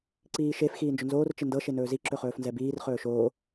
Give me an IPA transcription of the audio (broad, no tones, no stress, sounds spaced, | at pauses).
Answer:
ǀ iː ʃ e f x iː n d͡ʒ ɵ n z oː r t͡ʃ ɪ n d ɤ ʃ e n ɵː z i ǁ ɵ χ ɵː f n z ɛ b iː r χ ɵː ʃ oː